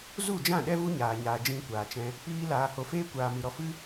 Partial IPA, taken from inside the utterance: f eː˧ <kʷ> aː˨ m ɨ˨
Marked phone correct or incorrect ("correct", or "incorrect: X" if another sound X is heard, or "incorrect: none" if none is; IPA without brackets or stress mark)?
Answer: correct